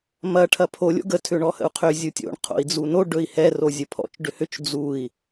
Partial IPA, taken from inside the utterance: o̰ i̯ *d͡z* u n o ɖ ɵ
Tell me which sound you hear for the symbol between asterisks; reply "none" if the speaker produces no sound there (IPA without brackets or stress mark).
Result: d͡z